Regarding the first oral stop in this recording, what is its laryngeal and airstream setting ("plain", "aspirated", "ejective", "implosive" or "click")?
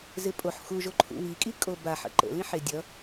ejective